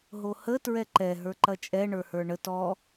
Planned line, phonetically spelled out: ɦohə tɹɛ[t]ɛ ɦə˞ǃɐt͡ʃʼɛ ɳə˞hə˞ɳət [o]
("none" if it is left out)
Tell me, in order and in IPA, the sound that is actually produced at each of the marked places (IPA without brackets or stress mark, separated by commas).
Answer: ǃ, ɔ